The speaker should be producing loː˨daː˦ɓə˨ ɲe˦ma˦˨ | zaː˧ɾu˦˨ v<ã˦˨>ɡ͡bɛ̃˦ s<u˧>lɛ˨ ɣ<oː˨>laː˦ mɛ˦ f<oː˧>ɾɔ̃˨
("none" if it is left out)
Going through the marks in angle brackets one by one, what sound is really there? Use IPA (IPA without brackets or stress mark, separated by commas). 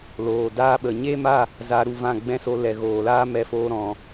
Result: ã˦˨, o˧, oː˨, oː˧